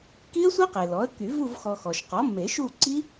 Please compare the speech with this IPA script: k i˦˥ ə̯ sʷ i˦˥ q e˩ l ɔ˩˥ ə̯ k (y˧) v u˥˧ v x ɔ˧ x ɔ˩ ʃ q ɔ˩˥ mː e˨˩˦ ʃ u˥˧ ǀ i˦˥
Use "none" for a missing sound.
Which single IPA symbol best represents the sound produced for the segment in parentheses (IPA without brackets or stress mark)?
y˨˩˦